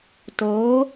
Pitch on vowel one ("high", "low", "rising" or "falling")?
rising